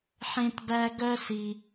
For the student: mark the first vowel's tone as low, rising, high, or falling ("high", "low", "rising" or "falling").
high